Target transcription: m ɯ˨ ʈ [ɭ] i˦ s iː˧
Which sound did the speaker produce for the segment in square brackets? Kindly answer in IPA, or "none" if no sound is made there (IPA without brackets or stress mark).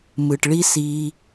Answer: ɭ